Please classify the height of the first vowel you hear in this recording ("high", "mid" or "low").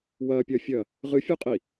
low